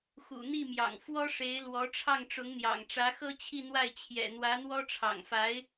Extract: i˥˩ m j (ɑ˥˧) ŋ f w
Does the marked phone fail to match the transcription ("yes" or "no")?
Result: yes